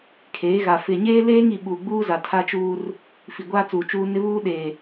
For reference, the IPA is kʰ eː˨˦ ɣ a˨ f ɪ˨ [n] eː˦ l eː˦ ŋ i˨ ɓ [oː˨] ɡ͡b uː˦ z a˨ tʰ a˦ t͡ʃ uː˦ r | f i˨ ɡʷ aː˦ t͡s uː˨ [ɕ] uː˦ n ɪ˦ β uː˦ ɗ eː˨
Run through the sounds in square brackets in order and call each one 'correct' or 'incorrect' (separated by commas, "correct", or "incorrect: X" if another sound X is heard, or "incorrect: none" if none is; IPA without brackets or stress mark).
incorrect: ɲ, incorrect: uː˨, incorrect: t͡ʃ